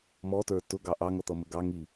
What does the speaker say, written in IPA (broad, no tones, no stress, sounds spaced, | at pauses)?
m ɔ t ə˞ t ʊ ɡ ɑ ʔ ɑ ŋ ʌ t̪ ʌ m ə ɡ ɑ ŋ i